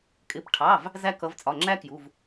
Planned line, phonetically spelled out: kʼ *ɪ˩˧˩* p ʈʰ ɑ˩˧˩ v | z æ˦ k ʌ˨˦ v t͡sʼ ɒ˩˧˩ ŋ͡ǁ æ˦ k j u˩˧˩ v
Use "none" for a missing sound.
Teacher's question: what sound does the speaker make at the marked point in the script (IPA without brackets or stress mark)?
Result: ɪ˩˧˩